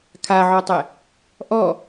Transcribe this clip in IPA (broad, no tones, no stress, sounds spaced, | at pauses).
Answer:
kʰ a ʕ ɔ tˤ ɛ | ʔ ɔ